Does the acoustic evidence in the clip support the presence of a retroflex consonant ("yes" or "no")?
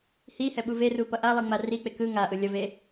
no